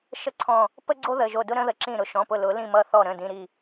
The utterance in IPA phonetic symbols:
ʃ ə˦ ǀʰ ɔ̃˧˩ | p ə˦ ɡ͡ǀ o˦ ð ə˩˧˩ ʒ o˧˩ d ʊ˦ ɾ ə̃˨˦ ð ə˩˧˩ ǁ ĩ˧˩ ɾ ʊ˩˧˩ ʃ ɔ̃˩˧˩ p ʊ˧˩ l ʊ˨˩˦ l ĩ˧˩ m ʌ˧˩ θ ɔ˧˩ ɾ ə̃˩˧˩ d ĩ˩˧˩ ɾ i˧˩

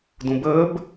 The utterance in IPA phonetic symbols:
d ũ b əː b

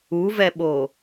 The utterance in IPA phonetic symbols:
u v ɛ ɓ o

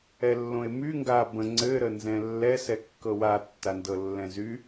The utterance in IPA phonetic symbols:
ɛ lː õ e̯ m y ŋ ɡ a b ə̃ ŋ͡ǀ ɘ ɾ ə n z ɛ̃ lː ɛ s ɛ kː ɤ w a tː a n d ɤ lː ɛ̃ z y

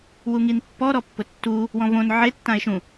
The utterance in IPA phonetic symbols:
w u ŋ i n pː ɔ ɾ ɔ pː ʊ tː u | w ɔ̃ v õ n ʕ e tː ã e̯ ʃ ũ

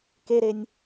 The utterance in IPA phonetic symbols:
k e ɾ e nʲ

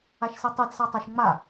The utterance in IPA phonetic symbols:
a ʃ s i tˤ i d s a tˤ ʌ ʃ ŋ͡m a

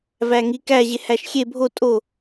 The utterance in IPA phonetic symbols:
v æ ŋ i k æ ʑ e h æ ʃ xʲ e bʱ o tʼ o

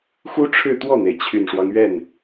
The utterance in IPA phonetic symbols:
x u˥ ʈ͡ʂʰ ɻ̩˥˧ t̪ w ɔ˥˩ n̪ e˩ ɪ̯ t͡ɕʰ y˨˩ n ʂ w ɑ˦ ŋ ɥ ɛ˥˩ n

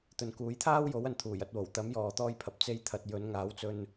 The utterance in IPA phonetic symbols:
t̪ ɵ˨ n k uː˨˥ j t̪ʰ aː˥ w j o˨˥ w ɐ˨˧ n t̪ʰ uː˨˩ j ɐ˨˥ t̚ w o˨˩ w t̪ ɐ˨˥ m j ɔː˨ t̪ ɔː˧ j pʰ ɐ˨ p̚ t͡s e˧ j t̪ʰ ɐ˨ t̚ j ɵ˨˥ n ŋ aː˨˥ w t͡s ɵ˧ n

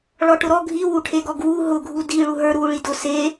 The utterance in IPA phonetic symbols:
ɭ ɔ ʈ ʊ ɾ ɔ ɡʱ i w u ʈʰ e ɡ ɔ ɡ w u ɦ ʊ ɡʱ u d i ɭ u ɦ ə˞ ɾ u ɭ i d ʊ s e

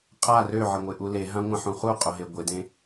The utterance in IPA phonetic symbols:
qʼ a r ø ʕ ɪ ŋʷ ɪ ʔ u l e ɦ ã ŋʷ ã ħ ũ χ u qʼ o ɦ e ɡʷ ɪ d ẽ

